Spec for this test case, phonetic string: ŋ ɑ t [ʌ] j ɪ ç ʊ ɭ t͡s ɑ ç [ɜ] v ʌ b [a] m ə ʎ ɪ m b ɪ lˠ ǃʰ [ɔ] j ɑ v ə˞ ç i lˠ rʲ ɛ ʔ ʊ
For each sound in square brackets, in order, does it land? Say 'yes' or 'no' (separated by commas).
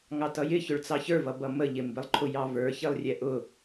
yes, no, no, no